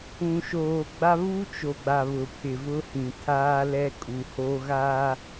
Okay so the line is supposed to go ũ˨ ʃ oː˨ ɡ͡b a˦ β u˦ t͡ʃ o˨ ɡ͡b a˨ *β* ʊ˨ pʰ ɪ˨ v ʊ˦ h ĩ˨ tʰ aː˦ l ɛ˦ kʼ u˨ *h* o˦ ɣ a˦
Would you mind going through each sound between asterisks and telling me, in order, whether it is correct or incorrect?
correct, correct

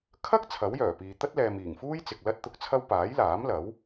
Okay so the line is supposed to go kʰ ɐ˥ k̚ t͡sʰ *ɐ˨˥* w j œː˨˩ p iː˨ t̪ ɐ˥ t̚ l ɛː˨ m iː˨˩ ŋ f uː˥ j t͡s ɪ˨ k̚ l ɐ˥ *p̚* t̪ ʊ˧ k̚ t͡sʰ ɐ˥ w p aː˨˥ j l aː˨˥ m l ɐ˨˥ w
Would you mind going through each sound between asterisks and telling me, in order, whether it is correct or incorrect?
correct, incorrect: t̚

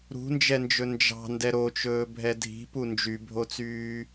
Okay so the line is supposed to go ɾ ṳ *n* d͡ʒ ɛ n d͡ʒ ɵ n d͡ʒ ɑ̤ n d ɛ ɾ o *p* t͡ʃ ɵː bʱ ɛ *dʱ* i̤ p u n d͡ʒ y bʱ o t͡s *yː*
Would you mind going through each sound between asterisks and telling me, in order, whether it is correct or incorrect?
correct, incorrect: none, correct, correct

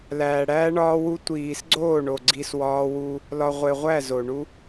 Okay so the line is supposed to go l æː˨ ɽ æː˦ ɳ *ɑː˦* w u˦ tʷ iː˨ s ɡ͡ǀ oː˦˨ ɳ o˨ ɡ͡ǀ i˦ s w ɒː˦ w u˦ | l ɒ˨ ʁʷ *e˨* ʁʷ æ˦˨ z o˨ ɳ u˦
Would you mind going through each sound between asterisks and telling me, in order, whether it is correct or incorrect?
incorrect: ɒː˦, correct

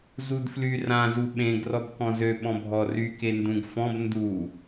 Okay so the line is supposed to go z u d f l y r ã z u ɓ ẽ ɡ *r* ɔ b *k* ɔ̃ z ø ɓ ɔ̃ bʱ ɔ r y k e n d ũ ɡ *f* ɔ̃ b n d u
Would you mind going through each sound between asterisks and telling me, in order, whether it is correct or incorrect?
correct, correct, correct

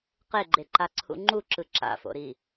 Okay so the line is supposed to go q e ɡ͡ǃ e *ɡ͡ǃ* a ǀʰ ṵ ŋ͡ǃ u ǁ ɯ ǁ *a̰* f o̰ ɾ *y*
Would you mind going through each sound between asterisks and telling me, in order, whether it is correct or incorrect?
incorrect: ǃ, correct, incorrect: i

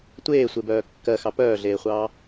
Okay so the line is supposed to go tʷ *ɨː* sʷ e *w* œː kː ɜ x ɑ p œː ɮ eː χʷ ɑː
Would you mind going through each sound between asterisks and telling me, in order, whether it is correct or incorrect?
incorrect: eː, incorrect: b

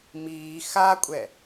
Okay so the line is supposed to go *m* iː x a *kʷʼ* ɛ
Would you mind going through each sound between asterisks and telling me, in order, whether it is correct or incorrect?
correct, correct

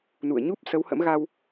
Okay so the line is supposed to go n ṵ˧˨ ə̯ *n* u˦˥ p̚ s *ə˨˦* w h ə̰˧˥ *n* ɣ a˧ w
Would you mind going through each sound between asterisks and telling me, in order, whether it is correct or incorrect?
incorrect: ɲ, correct, incorrect: m

